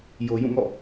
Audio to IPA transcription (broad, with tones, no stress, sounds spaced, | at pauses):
j o˨ j ũ˦˨ ŋ ɔ̰˦˨